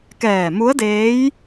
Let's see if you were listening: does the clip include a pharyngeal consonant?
no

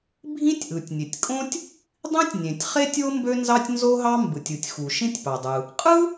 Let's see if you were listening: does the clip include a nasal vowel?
yes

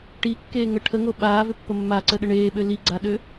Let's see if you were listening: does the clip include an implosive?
yes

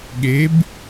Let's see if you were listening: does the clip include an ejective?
no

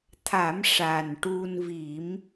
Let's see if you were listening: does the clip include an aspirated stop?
yes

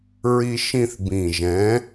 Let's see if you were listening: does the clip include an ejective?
no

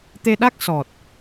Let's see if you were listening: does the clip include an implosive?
yes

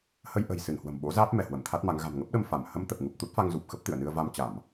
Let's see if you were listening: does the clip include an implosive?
yes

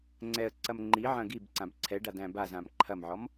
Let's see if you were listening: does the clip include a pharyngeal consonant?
yes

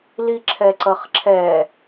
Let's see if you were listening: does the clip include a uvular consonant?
yes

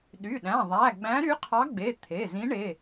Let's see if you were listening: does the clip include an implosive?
yes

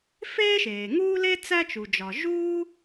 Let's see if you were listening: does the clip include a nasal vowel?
no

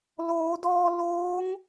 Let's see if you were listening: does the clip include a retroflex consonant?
no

